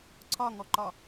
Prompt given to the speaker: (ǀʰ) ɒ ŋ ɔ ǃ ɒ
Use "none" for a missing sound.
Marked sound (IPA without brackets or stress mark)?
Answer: ǀʰ